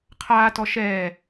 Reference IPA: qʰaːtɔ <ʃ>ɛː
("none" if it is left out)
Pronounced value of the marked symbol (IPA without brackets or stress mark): ʃ